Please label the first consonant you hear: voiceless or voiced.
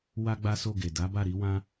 voiced